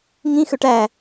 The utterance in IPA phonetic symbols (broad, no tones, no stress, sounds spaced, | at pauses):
ŋ ĩ x ø ʈ æ